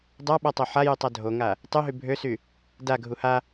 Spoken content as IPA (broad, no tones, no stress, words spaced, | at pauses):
dˤaɓatˤo ħajytˤa dʱoŋa | tˤyɦy bʱøsy | daɡʱu ha